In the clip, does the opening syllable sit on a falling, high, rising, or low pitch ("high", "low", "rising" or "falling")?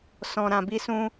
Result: low